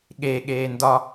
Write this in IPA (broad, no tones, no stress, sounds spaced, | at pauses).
ɠ e ɠ eː n d ɒ